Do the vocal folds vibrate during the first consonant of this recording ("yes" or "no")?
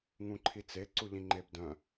yes